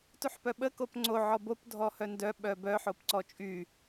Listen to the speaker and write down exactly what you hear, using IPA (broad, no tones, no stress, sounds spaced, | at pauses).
t u ħ p œ ɓ ə k o p ŋ͡ǀ o ʕ ɔ b o p dʱ ɔ h œ n d œ ɓ œ b œ ħ o p ǀ ɔ t͡ʃʼ y